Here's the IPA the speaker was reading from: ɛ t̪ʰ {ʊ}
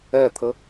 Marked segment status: incorrect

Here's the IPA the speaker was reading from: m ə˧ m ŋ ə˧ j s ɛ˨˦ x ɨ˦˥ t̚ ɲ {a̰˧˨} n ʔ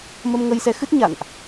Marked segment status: correct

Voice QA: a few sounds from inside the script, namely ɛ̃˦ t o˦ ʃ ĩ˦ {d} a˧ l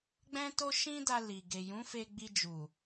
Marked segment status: correct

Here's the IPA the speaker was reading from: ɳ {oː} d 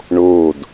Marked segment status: correct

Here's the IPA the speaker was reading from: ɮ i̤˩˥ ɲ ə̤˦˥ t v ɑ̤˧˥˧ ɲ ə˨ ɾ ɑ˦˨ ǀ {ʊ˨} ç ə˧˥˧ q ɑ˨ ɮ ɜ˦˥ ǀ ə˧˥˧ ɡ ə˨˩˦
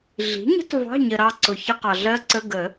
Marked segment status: correct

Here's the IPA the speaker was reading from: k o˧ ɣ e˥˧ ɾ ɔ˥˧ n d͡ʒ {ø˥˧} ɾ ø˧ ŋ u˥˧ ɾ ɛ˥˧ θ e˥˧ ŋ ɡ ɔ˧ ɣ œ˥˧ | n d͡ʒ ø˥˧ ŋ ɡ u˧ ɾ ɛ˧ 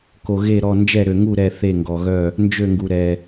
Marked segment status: incorrect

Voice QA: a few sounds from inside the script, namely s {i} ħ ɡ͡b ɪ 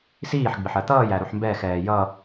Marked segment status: incorrect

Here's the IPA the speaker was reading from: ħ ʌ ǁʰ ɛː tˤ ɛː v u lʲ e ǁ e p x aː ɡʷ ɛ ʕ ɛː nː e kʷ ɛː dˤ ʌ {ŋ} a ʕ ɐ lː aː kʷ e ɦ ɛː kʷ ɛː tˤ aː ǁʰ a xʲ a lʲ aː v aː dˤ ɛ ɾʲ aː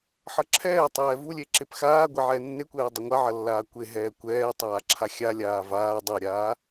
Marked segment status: incorrect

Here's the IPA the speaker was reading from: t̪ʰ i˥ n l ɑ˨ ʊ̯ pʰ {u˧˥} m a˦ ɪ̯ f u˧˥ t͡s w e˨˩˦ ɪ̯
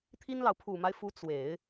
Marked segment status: incorrect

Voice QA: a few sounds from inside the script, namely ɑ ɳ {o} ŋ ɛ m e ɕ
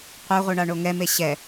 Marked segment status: correct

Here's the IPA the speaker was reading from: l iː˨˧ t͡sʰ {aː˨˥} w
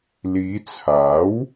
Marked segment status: correct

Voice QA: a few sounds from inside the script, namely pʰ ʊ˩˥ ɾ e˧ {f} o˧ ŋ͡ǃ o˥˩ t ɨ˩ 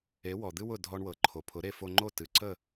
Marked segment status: correct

